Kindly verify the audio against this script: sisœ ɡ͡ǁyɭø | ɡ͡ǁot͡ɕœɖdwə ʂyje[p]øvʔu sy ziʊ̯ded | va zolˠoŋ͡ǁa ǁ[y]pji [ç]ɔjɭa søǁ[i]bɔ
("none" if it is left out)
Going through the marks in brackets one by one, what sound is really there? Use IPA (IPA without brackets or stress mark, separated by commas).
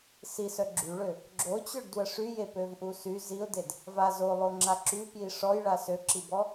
p, y, ʂ, i